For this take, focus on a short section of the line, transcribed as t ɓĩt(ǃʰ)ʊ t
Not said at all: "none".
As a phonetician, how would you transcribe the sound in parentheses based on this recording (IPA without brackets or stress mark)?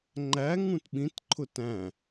ǃʰ